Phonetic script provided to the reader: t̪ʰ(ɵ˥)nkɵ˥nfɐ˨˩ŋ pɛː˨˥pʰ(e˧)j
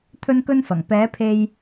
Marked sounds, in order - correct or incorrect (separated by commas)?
correct, correct